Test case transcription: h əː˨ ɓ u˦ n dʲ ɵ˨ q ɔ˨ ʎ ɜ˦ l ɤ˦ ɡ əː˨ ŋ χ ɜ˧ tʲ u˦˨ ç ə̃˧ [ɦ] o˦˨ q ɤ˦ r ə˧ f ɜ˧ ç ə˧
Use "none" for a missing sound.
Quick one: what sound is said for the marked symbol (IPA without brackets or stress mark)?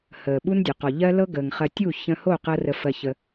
h